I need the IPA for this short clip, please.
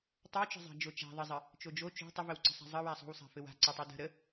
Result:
tˤ ə w t͡ʃ ə̤ zˤ a̤ d͡ʒ o t͡ʃ a̤ ðˤ ə zˤ ə | t͡ʃ o d͡ʒ o t͡ʃ o̤ tˤ ə v ə w ǀ ə̤ sˤ a̤ zˤ ə w a sˤ o̤ w sˤ a̤ f ɘ w a̤ ǀ ə tˤ o d ə̤ ɾ ə

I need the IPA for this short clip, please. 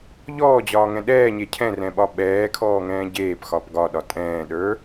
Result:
ʎ ɔː d͡ʑ ɒː ŋ ɛ̃ ɗ ɛː ɲ e cʰ ɛ̃ r ɛ̃ ɓ ɒ ɓ ɛː kʰ ɔː ŋ ɛ̃ː ɟ eː p x ɒ p ɡ ɒ ɗ ɒ tʼ ɛ̃ː ɗ ə˞

